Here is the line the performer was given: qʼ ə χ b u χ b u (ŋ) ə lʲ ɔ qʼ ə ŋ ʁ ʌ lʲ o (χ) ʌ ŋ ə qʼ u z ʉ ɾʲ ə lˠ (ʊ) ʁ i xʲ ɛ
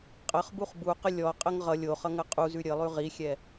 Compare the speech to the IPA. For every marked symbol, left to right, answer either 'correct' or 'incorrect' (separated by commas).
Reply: incorrect, correct, incorrect